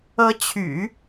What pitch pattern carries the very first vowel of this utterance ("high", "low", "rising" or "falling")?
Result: rising